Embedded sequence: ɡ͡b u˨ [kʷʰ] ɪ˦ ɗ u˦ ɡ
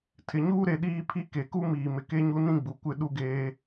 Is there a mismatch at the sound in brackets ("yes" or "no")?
yes